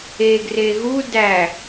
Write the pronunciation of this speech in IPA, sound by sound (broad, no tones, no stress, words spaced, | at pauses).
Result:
eɡre ɣu dæ